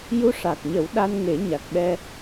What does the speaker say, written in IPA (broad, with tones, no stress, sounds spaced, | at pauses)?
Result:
j u˧ ʂ a˨˩ k̚ ɲ ə˨˩˦ w ɗ a˧ n ŋ e˨˩˦ ɲ a˨˩ k̚ ɓ ɛ˧